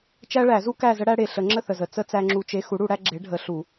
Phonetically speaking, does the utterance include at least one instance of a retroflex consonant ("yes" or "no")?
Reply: yes